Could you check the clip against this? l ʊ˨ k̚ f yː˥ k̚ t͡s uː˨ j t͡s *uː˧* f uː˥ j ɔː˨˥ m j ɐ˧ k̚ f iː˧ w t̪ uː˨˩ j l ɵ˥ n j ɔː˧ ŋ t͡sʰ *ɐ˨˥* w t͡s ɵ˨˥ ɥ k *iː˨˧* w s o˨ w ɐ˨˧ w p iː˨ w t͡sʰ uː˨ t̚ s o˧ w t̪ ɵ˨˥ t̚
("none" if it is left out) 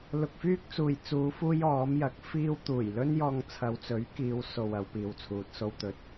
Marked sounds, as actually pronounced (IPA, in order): uː˨˧, ɐ˨˧, iː˨˧

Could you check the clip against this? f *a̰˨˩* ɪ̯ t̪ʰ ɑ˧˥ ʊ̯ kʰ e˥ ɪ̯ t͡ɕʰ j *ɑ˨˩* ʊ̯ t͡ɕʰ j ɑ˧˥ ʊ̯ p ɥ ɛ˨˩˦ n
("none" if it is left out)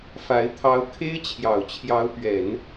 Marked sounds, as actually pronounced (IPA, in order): a˧˥, ɑ˨˩

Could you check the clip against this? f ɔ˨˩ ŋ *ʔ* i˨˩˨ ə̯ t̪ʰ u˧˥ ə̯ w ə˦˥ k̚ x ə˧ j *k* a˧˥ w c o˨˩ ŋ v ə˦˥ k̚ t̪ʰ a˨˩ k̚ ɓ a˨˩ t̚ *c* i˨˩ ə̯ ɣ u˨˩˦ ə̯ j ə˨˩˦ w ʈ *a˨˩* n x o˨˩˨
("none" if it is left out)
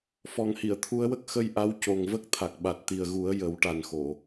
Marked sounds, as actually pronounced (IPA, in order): h, ʔ, t̪, a˨˩

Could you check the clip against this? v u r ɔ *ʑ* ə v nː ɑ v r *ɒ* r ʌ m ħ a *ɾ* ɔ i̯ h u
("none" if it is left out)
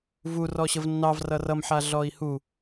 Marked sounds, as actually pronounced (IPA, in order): ɕ, ʌ, ɮ

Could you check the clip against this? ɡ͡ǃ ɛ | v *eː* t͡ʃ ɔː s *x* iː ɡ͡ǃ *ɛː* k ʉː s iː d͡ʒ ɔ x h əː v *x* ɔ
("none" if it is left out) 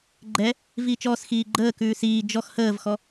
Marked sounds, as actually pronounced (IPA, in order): iː, x, əː, x

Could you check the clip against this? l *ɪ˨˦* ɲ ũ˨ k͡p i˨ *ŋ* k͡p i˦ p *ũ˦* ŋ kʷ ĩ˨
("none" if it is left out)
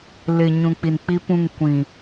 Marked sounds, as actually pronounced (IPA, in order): ɪ˨, n, ũ˦˨

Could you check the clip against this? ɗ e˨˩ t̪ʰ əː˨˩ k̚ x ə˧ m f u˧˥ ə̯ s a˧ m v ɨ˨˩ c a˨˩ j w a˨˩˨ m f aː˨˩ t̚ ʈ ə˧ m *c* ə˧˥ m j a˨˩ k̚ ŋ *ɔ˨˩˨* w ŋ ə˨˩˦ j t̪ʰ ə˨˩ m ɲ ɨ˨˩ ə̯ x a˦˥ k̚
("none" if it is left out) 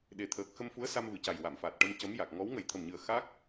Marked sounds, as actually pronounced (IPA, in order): c, ɔ˧˥

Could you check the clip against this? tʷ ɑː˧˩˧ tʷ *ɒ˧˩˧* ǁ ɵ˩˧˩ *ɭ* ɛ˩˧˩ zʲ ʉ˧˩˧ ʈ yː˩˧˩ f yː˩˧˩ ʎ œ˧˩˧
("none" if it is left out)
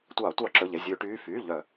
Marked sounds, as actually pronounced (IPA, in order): ɑ˧˩˧, ʎ

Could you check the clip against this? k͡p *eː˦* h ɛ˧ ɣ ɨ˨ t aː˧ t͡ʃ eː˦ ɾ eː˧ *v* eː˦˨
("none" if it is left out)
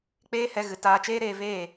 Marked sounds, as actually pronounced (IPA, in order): eː˦, v

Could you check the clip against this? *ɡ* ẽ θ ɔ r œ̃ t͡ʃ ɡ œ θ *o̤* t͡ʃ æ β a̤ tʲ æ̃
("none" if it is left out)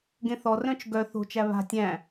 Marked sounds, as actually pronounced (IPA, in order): ɡ, o̤

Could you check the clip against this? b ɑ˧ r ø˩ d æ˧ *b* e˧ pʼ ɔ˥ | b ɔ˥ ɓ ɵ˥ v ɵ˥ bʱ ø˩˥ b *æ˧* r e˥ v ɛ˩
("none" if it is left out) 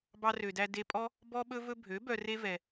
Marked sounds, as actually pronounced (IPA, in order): d, œ˧

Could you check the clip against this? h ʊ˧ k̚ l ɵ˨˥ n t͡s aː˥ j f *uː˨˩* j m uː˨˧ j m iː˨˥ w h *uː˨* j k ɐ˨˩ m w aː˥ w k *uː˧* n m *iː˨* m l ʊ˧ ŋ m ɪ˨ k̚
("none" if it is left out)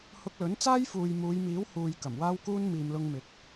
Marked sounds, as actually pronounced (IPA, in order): uː˨, uː˧, uː˥, iː˨

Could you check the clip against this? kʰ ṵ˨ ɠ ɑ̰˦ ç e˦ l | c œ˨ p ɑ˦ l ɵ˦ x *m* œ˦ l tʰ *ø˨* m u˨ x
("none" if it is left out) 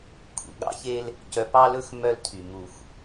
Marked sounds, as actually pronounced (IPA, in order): m, y˨

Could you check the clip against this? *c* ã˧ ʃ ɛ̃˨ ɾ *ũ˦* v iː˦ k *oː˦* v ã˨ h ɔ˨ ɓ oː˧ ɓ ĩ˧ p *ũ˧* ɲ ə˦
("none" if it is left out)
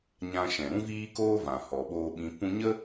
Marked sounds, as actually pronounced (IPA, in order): ɲ, ũ˦, oː˦, ũ˧

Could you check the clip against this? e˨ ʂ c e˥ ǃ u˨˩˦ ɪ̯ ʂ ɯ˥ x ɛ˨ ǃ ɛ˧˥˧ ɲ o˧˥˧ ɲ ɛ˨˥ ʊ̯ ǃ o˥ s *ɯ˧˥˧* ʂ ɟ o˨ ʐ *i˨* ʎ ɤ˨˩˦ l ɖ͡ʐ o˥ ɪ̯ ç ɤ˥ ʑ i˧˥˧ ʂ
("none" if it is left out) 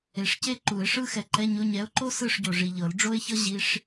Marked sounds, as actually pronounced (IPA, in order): ɯ˥˨, i˨

